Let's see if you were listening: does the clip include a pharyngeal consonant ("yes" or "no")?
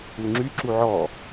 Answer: yes